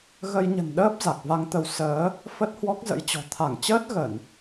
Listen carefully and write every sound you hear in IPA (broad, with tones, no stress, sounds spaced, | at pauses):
ɣ ə˧ j ɲ ə̤˨˩ n ɗ əː˦˥ p̚ z a˨˩ k̚ v a˧ ŋ t̪ ə˧ w s əː˨˦ | f ə˦˥ t̚ h w ɔ˦˥ k̚ z ə̰˧˥ j t͡ɕ ɔ̤˨˩ t̪ʰ a˧˩ ŋ t͡ɕ əː˦˥ t̚ ɣ ə˧˩˨ n